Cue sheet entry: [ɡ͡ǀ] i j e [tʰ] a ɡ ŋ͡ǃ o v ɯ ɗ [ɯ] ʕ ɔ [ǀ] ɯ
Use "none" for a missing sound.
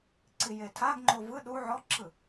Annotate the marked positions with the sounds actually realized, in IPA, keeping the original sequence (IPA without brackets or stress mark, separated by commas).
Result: ǀ, tʰ, u, ǁ